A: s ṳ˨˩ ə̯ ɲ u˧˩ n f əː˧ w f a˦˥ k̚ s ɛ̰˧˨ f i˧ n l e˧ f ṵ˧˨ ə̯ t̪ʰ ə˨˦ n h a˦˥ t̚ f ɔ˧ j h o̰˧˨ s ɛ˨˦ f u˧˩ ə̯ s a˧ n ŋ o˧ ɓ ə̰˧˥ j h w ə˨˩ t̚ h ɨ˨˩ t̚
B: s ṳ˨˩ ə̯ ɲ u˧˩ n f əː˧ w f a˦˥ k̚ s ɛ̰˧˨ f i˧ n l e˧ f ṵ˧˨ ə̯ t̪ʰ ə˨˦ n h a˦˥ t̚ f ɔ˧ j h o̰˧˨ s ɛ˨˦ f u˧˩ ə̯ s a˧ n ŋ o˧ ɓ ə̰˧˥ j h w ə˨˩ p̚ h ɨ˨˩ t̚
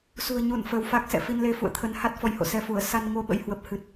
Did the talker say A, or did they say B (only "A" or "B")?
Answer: B